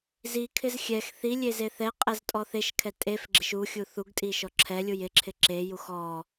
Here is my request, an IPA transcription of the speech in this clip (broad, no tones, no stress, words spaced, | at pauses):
zikʰɪz xʲɛx θilʲeze θɛqʼɛztʼɔ θeʃkʰɛ tʼefɡ͡ǁɪʃ uxʲu θuɡtʼiʃɔ ǁʰɛlʲuj ɪǁʰɪ ǁejux ɔ